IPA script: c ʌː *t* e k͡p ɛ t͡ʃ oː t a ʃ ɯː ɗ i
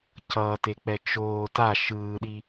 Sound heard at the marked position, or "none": t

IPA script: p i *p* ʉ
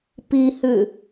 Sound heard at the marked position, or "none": h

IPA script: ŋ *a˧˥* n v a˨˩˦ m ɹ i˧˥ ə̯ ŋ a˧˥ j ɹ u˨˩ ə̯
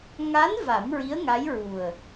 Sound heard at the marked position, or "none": a˧˥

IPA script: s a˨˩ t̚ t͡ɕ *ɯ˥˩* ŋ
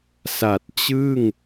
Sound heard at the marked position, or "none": ɯ˥˩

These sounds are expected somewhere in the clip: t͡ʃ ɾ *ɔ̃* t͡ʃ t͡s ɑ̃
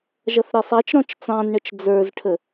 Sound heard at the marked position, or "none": ɔ̃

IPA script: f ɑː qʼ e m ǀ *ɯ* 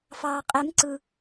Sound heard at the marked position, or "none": ɯ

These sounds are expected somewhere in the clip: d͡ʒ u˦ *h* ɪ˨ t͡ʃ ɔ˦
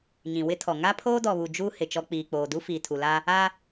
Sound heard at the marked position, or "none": h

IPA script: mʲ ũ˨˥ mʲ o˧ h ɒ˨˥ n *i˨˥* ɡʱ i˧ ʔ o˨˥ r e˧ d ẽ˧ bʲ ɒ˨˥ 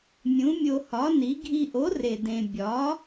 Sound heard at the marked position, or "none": i˨˥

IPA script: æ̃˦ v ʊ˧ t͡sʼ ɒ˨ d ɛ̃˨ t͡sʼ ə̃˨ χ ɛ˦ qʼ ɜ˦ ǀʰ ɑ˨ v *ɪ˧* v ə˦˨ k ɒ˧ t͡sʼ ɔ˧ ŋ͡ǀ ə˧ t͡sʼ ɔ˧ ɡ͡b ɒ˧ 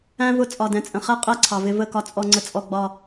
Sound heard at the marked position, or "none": ɪ˧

